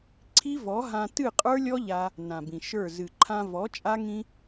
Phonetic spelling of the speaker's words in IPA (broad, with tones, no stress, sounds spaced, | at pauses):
ǀʰ i˦ v ɔ˨˦ ɦ ã˧ t ɨ˦˨ qʼ ə˞˦ lʲ ɔ˦ ʎ a˧ | n ã˨ b ĩ˨ ʃ ə˞˦˨ z ɨ˨ ǃʰ ã˧ v ɔ˨˦ t͡ʃʼ a˦ ŋ ĩ˦